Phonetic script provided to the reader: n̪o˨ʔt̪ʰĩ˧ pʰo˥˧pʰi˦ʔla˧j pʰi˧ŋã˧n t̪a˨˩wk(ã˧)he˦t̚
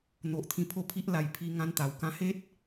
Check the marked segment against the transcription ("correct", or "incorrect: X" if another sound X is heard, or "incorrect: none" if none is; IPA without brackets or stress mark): correct